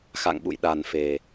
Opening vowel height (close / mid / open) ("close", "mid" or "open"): open